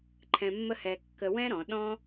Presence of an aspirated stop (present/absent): present